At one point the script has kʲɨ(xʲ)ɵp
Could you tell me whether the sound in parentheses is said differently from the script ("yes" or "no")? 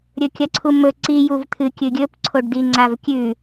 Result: yes